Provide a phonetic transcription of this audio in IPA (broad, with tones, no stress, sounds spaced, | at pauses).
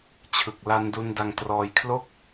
t͡ɕʰ ɯ˨˩ k̚ l a˧ n d u˧ n d a˧ ŋ t r ɔː˧ j kʰ l o˥˩ k̚